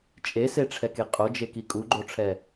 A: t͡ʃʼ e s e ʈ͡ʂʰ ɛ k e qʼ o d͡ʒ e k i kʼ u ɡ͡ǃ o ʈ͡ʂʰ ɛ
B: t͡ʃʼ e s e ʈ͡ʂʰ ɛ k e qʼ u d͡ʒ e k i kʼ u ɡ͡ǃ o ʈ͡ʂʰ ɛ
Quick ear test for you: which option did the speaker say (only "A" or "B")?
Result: A